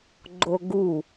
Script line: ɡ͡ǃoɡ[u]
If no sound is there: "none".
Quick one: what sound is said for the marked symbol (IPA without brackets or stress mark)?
u